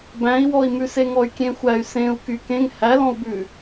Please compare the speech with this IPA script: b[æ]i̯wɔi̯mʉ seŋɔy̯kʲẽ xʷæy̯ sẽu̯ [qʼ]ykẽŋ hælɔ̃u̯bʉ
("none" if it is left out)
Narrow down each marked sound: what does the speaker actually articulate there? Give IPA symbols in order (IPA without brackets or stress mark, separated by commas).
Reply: æ̃, k